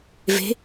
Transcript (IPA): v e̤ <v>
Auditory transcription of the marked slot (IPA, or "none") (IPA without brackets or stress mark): none